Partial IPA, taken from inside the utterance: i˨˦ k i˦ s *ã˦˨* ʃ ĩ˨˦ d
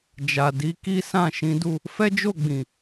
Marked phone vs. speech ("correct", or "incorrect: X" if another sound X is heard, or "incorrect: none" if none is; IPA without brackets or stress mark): correct